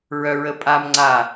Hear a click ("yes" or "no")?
yes